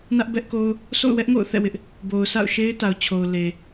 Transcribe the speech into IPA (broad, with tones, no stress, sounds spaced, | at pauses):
n ä˦ ʔ b ɛ˦ ʔ k o˦ ʊ̯ | s o̰˦˨ ʊ̯ w ɛ˦ ʔ ŋ o̰˦˨ ʊ̯ θ ɛ̰˦˨ w ɪ˦ ʔ | b o˨ ʊ̯ sʰ a̰˦˨ ʊ̯ ʃ e˦ ɪ̯ t a˨ ʊ̯ t͡ɕʰ o˨ ʊ̯ l e˨